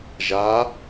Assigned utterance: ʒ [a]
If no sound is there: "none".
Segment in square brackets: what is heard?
a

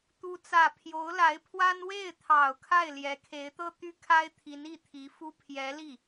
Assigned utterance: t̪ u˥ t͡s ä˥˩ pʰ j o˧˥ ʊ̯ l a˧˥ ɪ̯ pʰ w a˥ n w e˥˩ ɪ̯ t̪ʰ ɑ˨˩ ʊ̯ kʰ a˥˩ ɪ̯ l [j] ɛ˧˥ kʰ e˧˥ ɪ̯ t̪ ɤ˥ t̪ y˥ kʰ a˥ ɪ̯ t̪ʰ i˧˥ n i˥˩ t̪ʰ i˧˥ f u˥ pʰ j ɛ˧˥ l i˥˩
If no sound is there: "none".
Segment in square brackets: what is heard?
j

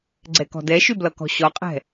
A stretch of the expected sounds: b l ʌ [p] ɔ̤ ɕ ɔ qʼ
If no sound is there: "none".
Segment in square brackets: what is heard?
k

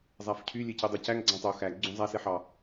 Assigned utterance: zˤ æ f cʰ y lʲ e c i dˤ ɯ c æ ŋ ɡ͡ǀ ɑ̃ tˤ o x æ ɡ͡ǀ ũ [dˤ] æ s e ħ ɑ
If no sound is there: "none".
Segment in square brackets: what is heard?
zˤ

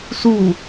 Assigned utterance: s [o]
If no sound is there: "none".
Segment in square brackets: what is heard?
u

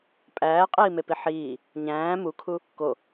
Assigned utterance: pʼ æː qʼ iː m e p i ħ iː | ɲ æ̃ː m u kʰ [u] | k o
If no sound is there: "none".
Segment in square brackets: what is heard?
u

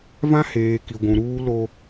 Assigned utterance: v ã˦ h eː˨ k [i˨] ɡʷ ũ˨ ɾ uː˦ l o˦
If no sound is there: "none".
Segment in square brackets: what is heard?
i˨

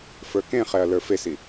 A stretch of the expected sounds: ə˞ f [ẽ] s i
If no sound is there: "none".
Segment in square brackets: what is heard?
e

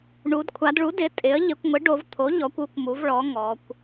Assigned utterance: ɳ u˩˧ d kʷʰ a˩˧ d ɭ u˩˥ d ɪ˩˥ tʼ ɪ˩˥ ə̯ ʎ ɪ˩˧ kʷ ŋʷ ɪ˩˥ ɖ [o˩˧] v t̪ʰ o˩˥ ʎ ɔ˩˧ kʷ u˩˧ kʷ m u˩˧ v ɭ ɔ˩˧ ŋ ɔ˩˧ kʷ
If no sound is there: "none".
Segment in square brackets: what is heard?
o˩˧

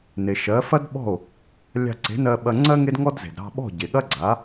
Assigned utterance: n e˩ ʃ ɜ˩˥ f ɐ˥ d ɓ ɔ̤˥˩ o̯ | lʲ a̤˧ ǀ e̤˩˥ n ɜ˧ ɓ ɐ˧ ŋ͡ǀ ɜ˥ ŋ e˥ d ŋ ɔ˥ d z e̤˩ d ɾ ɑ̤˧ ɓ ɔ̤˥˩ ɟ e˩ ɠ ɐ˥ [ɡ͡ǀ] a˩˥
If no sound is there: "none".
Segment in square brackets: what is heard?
ɡ͡ǀ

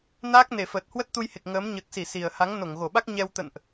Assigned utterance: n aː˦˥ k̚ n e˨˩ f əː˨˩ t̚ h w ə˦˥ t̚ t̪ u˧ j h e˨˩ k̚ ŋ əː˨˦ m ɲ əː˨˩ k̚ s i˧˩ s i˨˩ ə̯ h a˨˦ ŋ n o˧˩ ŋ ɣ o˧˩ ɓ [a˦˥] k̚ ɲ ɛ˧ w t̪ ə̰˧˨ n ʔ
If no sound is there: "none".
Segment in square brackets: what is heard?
a˦˥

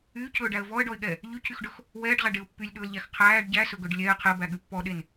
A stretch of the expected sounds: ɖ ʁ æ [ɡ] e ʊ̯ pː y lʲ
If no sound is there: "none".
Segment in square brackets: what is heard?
ɖ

